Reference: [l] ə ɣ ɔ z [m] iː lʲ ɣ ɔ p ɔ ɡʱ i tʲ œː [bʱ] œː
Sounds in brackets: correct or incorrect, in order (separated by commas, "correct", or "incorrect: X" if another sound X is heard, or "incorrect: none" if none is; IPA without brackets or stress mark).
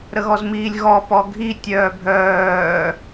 incorrect: ɾ, correct, correct